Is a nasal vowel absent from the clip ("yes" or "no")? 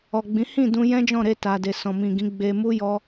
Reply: no